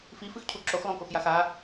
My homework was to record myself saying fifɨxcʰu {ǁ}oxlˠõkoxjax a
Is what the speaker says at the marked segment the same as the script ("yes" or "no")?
yes